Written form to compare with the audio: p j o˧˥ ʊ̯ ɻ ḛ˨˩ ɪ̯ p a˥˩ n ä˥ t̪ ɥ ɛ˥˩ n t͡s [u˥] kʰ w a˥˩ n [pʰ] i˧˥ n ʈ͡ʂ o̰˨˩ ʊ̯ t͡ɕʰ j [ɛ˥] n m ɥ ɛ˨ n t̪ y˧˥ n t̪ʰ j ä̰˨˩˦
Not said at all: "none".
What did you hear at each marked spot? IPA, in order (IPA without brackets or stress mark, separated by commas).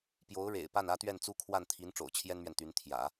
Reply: u˥, t̪ʰ, ɛ˥